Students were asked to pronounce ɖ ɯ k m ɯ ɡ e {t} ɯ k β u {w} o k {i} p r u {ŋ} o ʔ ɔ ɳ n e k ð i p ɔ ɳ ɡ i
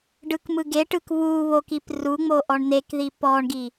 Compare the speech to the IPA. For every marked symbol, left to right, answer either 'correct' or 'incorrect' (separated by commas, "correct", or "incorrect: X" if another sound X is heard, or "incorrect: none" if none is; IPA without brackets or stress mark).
incorrect: ʈ, incorrect: β, correct, incorrect: ŋ͡m